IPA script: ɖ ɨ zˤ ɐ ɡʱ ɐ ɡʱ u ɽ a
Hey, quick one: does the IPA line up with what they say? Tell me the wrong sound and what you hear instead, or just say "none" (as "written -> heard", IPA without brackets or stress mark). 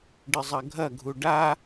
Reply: ɽ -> ɖ